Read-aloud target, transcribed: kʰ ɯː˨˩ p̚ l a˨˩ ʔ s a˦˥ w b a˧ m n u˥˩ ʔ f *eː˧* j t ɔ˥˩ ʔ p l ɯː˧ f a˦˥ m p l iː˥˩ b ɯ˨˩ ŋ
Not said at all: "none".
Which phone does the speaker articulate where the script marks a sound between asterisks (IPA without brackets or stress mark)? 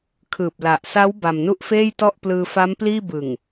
eː˥˩